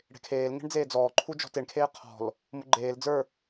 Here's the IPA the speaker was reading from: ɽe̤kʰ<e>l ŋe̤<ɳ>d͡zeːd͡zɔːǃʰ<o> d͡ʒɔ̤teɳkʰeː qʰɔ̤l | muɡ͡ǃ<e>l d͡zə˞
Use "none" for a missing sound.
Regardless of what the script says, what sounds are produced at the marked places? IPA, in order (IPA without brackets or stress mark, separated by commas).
eː, ɳ, u, eː